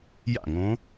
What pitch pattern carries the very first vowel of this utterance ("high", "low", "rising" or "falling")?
falling